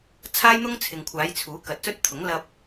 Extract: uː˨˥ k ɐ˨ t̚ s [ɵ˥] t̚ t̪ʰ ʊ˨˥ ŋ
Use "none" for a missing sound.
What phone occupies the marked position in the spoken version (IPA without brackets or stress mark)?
ɵ˥